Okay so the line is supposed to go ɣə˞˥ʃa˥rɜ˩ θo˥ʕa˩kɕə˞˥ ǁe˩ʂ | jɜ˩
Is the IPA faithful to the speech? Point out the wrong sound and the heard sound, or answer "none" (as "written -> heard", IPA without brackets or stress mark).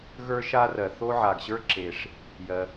k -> ɡ